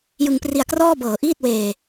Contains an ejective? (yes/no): no